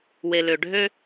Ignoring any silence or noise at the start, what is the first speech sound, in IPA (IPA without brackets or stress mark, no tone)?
w